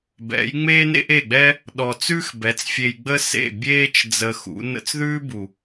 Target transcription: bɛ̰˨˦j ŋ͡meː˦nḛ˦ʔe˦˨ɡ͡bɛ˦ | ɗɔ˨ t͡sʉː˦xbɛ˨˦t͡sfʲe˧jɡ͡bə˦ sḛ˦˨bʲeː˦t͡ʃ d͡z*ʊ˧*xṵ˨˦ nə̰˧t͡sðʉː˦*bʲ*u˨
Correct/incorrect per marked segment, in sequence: incorrect: ə˧, incorrect: b

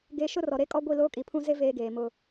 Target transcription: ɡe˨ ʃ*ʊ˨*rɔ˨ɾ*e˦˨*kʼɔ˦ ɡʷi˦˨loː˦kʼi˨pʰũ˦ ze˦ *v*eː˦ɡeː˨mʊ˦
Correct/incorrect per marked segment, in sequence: incorrect: ʊ˦, incorrect: e˦, correct

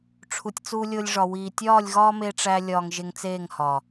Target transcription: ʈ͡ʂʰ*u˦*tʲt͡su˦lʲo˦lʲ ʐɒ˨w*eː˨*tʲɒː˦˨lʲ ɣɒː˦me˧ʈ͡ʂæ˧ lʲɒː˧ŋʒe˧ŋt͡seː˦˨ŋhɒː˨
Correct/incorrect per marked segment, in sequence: incorrect: u˧, incorrect: iː˨

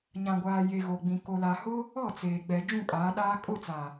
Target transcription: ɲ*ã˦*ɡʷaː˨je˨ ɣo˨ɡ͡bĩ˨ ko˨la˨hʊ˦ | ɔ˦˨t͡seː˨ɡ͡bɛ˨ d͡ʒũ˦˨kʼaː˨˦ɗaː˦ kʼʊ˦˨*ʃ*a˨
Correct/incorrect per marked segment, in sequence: incorrect: ã˨, incorrect: t͡s

